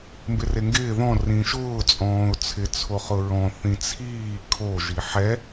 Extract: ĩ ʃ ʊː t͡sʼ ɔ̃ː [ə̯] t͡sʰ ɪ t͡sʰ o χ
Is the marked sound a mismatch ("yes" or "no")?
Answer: yes